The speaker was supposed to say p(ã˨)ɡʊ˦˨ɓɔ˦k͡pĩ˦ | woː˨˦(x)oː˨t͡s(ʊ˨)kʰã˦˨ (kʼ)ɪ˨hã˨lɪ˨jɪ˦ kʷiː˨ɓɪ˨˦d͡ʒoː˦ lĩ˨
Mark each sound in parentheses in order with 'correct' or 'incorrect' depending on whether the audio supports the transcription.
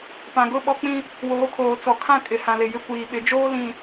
correct, incorrect: kʰ, incorrect: ɔ˨, correct

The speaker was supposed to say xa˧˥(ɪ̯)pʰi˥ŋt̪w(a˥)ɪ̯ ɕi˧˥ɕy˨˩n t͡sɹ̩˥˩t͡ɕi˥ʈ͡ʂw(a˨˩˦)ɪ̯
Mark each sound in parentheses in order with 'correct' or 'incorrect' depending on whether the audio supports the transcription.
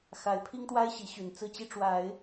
correct, correct, correct

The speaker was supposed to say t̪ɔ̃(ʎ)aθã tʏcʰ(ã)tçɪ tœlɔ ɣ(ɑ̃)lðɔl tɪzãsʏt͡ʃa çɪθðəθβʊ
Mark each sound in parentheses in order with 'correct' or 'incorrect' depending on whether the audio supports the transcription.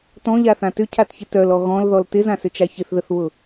correct, incorrect: a, incorrect: ɔ̃

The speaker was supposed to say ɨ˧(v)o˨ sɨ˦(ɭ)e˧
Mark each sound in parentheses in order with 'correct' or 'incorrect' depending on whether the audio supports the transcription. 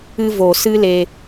correct, incorrect: l

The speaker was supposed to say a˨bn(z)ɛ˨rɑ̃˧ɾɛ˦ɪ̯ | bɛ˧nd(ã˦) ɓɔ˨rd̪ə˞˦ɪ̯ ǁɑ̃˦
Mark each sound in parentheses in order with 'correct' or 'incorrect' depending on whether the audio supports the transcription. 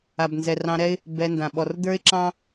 correct, incorrect: ã˨

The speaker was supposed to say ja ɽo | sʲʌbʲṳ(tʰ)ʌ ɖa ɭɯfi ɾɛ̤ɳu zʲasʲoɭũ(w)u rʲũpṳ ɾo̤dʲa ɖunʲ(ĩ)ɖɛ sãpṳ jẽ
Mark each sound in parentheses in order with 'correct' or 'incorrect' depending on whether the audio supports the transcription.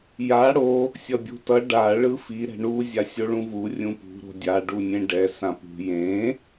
incorrect: t, incorrect: v, incorrect: ẽ

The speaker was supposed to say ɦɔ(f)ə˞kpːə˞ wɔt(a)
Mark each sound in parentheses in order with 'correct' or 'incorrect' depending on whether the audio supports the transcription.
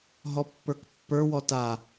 incorrect: pː, correct

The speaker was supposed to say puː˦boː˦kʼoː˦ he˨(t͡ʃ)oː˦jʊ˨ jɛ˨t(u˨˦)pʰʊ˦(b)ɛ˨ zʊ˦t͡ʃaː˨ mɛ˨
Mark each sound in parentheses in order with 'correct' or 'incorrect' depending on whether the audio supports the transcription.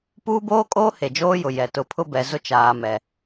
incorrect: d͡ʒ, incorrect: ʊ˨˦, correct

